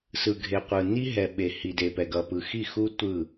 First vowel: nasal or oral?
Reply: oral